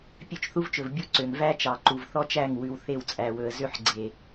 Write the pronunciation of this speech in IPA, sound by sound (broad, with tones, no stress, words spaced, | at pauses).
pʲø˦˨t͡ʃθu˦vt͡ʃɵ˨v bʲu˦ǀø˨ŋ væ˦ t͡ʃɑ˨ǃu˨vθɔ˦t͡ʃæ˦˨ŋ wʉ˨wθe˦˨wt͡sʼæ˨wɵ˨ə̯ zø˦ħɡ͡ǀe˨